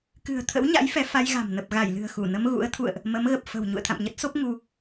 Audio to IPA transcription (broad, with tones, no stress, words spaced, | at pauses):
kɨ̤˨˩ə̯t̪ʰə̰˧˥wɲa̰˧˥j fɛ˨˦ fa˧jɣa̤˨˩m nə˨˩p̚ɣa˧˩jlɨ̤˨˩ə̯ xu˧˩nə˧m ɣṵ˧˥ə̯ t̪ʰṵ˧˨ə̯ʔ | mə˨˦mɣə˨˩p̚ fə̤˨˩w ɲṵ˧˨ə̯t̪ʰa̰˧˨mɲə˦˥t̚so˦˥p̚ ŋu˧